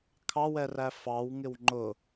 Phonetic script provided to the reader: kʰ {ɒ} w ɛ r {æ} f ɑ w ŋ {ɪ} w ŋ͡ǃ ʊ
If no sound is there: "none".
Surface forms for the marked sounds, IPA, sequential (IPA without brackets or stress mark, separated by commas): ɑ, æ, ɪ